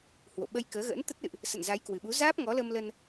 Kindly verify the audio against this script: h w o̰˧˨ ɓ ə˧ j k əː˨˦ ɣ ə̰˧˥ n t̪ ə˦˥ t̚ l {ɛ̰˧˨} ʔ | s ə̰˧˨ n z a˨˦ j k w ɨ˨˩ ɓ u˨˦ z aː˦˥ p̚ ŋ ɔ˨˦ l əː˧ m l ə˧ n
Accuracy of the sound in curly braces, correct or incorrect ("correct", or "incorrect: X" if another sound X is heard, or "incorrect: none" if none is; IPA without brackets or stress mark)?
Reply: incorrect: ɨ̰˧˨